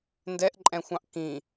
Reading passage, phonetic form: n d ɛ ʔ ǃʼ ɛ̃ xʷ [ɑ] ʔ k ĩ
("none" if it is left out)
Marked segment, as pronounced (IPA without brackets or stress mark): ɑ̃